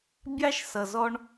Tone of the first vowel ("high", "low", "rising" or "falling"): high